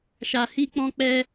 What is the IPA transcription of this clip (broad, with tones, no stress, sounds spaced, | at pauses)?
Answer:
ʃ a˧ h i˦ k͡p ɔ̃˦ k͡p ɛ˦